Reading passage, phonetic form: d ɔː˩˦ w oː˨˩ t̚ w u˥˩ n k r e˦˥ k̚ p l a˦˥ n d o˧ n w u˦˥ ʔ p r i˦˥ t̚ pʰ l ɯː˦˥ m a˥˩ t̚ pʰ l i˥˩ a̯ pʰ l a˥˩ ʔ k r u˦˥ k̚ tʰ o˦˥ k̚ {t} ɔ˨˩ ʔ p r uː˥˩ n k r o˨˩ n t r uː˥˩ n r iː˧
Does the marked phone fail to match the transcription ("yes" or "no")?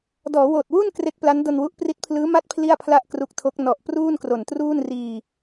yes